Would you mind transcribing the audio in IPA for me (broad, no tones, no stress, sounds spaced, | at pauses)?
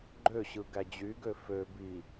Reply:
ɡ͡ǃ ø ɕ ɯ ɡ æ d͡ʑ y ɡ ø f ø b i